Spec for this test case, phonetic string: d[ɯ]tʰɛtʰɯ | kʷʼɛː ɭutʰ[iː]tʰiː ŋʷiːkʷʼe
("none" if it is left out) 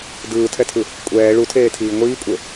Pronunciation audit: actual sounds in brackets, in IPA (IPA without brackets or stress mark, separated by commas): ɯː, eː